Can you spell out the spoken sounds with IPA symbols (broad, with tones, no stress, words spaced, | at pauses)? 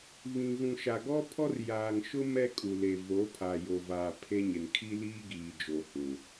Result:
βĩ˨ɣũ˨ ʃa˨ɡɔ˦pʰɔ˦r jaː˨ŋʃʊ˦ mɛ˦kʼu˨ le˨ vo˨˦pʰa˨ jo˨vaː˨ pʰe˦ɲɪ˨n kʰi˦liː˦ɡiː˨d͡ʒo˨ hũ˨